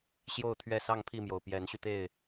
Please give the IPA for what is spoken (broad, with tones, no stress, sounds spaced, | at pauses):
ɕ j o˥˨ ʊ̯ t̪ʰ ɥ ɛ˥˨ s ɑ˥˨ ŋ pʰ i˥˨ m j o˩ ʊ̯ p j ɛ˨˦ n ɕ y˧ t̪ e˥˨ ɪ̯